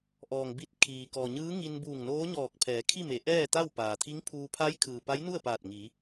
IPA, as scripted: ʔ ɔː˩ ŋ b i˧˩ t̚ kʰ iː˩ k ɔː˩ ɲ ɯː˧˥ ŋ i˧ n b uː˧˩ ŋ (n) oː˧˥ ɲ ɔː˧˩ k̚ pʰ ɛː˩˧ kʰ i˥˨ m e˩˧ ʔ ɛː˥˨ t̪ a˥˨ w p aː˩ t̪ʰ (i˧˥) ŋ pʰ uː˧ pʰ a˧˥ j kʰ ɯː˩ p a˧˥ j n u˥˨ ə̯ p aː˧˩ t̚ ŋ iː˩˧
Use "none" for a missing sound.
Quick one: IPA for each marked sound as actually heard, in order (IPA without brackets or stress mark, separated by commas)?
n, i˧˥